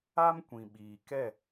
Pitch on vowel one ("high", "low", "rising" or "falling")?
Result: high